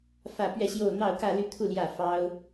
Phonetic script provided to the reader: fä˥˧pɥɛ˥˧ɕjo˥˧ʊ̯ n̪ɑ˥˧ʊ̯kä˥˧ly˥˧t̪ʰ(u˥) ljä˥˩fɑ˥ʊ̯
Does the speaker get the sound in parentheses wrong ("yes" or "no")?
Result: yes